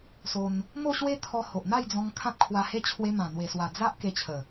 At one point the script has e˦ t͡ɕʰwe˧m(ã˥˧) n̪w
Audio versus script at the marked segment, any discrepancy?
yes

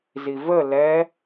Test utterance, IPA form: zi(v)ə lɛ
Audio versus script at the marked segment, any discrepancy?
no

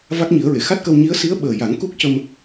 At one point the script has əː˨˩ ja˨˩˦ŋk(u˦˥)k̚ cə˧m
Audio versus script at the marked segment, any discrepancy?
no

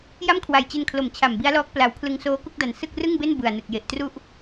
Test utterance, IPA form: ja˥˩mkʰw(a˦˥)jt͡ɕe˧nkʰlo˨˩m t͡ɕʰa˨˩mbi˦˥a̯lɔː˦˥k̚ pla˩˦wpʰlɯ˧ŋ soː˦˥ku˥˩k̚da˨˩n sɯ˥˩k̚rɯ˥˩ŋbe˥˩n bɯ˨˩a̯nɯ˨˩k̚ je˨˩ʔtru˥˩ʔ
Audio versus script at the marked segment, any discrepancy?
yes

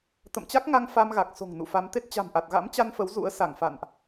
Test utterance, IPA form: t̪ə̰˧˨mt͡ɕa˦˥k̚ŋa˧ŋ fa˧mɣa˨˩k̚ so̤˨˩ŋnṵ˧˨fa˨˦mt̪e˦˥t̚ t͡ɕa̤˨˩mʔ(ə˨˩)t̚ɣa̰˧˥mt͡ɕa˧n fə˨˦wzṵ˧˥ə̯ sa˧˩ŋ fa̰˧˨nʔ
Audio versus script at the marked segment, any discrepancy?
yes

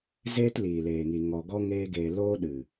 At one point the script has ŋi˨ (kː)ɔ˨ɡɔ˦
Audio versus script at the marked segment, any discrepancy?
yes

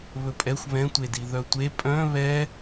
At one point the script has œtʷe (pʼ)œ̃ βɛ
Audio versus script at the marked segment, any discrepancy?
no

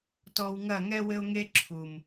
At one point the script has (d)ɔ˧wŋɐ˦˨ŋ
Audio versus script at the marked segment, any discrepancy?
yes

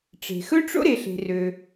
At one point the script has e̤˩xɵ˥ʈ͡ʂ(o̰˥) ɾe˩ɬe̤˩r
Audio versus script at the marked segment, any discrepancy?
no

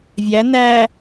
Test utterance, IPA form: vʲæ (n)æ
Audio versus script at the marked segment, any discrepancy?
no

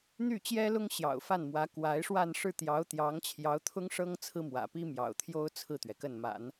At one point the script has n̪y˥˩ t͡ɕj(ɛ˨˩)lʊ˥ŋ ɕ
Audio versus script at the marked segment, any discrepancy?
yes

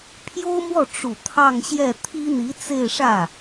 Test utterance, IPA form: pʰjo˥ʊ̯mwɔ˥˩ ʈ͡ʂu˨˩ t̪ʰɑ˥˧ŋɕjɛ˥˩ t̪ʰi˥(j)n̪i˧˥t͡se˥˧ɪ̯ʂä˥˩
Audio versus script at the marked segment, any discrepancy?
yes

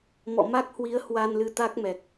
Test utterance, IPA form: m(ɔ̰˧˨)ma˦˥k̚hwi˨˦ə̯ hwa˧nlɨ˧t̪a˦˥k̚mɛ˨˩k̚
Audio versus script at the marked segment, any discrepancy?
no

